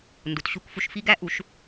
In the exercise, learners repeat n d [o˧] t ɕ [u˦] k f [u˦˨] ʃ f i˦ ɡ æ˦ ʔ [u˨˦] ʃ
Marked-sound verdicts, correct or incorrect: incorrect, correct, incorrect, correct

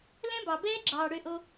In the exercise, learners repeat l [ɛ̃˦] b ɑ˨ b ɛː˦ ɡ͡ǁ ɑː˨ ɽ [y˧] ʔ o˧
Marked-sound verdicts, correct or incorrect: correct, incorrect

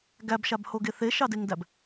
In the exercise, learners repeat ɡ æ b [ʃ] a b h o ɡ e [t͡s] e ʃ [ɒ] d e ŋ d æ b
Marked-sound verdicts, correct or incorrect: correct, incorrect, incorrect

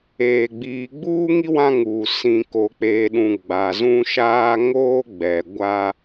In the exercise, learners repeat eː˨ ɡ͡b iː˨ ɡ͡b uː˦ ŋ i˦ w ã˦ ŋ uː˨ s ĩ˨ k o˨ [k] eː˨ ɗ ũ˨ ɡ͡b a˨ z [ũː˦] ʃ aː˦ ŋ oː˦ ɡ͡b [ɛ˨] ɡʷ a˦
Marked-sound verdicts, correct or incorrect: incorrect, incorrect, correct

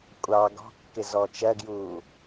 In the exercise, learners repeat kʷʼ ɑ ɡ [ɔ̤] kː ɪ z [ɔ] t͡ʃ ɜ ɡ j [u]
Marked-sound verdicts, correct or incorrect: correct, correct, incorrect

